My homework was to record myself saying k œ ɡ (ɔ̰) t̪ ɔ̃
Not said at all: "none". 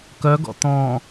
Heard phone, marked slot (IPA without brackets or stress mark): ɔ̰